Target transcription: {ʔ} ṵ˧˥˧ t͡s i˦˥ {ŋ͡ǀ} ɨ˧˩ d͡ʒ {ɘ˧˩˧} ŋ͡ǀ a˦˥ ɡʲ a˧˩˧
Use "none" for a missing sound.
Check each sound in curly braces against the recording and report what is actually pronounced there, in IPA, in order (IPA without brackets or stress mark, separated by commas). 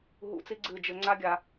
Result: ɦ, ɡ͡ǀ, ɘ˧˩˧